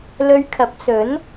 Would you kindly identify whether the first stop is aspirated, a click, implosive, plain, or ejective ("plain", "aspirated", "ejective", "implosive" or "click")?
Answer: aspirated